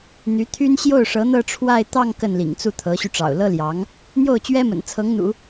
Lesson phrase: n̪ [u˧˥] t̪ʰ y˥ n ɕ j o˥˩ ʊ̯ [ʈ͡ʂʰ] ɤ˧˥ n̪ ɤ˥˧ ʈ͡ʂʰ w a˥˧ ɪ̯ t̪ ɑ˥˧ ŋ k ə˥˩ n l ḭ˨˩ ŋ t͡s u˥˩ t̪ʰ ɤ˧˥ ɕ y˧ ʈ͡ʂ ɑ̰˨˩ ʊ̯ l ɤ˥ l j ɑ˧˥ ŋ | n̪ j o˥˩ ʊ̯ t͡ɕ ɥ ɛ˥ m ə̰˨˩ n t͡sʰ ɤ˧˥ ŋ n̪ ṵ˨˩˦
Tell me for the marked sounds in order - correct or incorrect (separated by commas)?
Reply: incorrect, incorrect